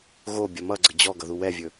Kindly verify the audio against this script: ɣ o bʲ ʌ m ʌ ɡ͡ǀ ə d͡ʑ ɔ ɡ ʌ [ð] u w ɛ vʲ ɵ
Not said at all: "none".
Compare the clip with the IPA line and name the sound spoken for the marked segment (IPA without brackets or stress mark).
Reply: ð